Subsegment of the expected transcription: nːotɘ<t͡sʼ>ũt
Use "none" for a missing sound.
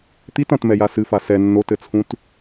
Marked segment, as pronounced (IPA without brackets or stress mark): t͡sʰ